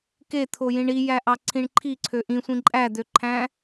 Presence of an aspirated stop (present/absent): present